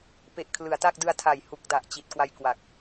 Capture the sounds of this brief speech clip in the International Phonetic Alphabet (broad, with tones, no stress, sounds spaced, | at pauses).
p e˨˩ ʔ kʰ l ɯ˩˦ a̯ t a˥˩ k̚ d ɯ˧ a̯ tʰ a˨˩ j h u˨˩ k̚ d a˨˩ ʔ t͡ɕ i˨˩ t̚ k w a˧ j k w a˨˩ k̚